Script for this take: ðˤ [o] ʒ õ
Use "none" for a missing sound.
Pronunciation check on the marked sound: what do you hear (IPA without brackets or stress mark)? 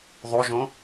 o